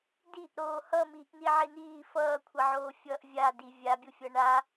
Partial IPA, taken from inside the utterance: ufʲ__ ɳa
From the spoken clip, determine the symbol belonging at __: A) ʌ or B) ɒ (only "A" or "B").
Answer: A